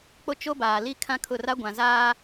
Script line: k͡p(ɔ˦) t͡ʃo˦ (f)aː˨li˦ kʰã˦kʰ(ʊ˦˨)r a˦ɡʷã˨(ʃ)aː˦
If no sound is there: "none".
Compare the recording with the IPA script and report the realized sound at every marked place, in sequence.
o˦, b, ʊ˦˨, z

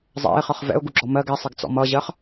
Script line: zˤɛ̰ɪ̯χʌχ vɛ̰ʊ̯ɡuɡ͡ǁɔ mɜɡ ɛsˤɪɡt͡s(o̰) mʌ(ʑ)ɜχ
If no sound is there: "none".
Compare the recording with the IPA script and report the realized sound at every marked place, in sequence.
ɔ̰, ʑ

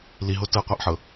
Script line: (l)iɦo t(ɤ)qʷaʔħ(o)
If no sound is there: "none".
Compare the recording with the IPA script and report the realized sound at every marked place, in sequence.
l, ɤ, ɤ

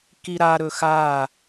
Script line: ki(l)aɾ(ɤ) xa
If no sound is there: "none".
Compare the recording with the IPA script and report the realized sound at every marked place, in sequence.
ɾ, ɵ

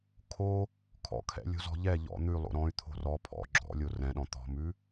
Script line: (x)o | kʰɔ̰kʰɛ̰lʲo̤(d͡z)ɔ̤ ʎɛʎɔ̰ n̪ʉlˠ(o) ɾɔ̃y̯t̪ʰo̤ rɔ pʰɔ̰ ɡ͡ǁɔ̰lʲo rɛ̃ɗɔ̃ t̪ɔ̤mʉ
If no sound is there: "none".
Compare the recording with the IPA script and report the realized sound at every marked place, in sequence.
kʰ, z, o̰

